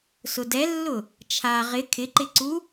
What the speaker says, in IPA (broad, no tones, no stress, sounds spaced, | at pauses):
s ʊ d ɛ lː ʊ | t͡ʃʰ a ʁ ɪ kʰ ɪ ǃ ɪ ǀ u